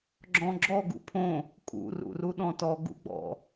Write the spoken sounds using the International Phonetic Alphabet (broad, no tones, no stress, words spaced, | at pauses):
ɡ͡ǁɔ̃ɡ͡ǁɔ ɡṵpʰõ | kʼṵ rṵruɗɔ̃tɔ ɡṵɡ͡bɔ̰